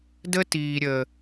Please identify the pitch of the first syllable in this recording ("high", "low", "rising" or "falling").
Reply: high